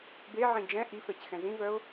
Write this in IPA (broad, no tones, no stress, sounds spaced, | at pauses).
b e ʕ ĩ d͡ʒ ɛ̃ ʔ i f ɛ c x ɛ̃ z ĩ v œ ʊ̯